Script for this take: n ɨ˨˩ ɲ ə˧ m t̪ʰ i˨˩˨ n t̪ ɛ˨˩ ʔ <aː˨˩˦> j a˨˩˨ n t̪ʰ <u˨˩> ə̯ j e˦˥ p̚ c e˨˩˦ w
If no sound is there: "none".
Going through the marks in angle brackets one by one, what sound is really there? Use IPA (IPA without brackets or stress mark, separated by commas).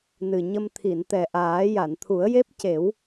aː˨˩˦, u˨˩˦